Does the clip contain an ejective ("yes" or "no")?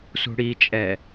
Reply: yes